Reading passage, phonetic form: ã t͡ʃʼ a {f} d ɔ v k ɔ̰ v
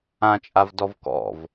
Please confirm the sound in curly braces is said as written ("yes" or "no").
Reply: no